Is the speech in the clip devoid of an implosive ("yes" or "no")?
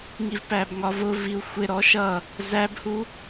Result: yes